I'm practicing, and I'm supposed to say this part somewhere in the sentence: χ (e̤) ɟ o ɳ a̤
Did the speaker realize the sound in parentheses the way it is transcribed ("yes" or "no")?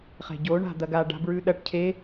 yes